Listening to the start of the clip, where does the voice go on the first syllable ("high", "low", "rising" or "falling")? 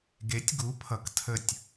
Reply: rising